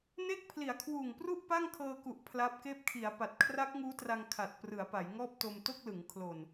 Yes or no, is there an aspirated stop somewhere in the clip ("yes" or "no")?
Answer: yes